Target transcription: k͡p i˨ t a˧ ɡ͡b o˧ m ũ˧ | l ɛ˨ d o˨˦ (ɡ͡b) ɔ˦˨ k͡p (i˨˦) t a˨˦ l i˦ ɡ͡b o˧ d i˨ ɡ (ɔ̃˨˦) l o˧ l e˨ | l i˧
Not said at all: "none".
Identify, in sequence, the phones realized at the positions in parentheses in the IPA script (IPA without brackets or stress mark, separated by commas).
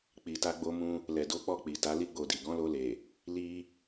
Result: k͡p, i˨, ɔ̃˨˦